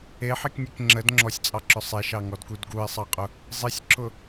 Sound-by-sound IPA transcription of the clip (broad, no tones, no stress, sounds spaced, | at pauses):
e ħ i k nʲ e k ŋ͡ǁ ə d ŋ͡ǁ ɔ sʲ t͡sʼ ɑ ǁ ʊ sˤ e ʃ ɑ ŋ ɔ d k u d ɡ u e̯ sˤ ɑ qʼ ʊ | zˤ i sʲ ǁ ʊ